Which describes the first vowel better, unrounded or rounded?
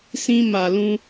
unrounded